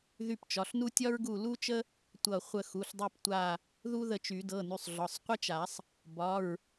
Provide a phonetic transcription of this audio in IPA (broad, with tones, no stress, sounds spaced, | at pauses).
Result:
ð y˦˨ p t͡ʃ ɒ˩˧˩ ɬ n u˥ tʲ ɒ˥ ɹ ɡ u˦˨ l u˥ t͡ʃ ə˥ | tʷ ʌ˦˨ χʷ ə˦˨ x u˩˧˩ ɬ dˤ u˦˨ p tʷ a˦˨ | ð u˥ ð ə˦˨ t͡ʃ y˨˩˦ d ɤ˩˧˩ n y˩˧˩ sˤ ɮ ɒ˩˧˩ sˤ qʷ ə˥ t͡ʃ a˨˩˦ sˤ | b ɒ˩˧˩ ɹ